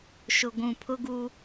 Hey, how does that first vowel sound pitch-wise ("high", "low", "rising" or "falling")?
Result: low